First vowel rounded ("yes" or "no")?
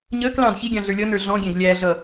no